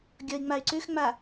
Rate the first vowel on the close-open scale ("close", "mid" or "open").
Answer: mid